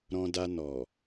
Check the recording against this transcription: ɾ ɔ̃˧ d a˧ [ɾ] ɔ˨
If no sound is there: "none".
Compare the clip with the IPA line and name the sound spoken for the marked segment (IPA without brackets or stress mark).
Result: n